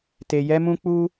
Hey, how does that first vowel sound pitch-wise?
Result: low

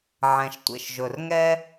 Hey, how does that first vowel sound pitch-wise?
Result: low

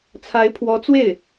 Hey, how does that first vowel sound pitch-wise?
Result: rising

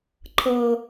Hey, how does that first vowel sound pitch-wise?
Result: high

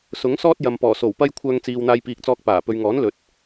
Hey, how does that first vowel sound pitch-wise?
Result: rising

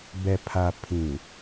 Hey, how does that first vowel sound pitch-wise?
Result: low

